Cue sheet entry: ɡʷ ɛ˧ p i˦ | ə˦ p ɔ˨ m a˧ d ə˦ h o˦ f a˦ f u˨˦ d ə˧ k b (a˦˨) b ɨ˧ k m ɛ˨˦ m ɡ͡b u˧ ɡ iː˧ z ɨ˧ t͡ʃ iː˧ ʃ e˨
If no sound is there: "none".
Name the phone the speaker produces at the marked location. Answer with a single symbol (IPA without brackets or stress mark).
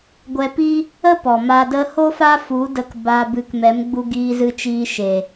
a˧